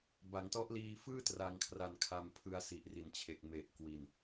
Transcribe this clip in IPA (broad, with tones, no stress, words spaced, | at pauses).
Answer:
ba˩˦ŋtɔ˦˥ʔ liː˧fɯː˥˩ tra˧ŋkʰra˧nkʰa˧m pʰɯ˧a̯si˨˩ʔri˨˩nt͡ɕʰe˨˩k̚ me˨˩ʔ kwi˧n